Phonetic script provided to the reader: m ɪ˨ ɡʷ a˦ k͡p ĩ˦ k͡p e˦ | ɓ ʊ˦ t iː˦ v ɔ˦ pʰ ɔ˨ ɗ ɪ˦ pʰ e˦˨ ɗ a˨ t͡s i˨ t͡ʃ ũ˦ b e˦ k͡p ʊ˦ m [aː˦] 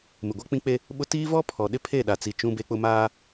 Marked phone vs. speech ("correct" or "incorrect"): correct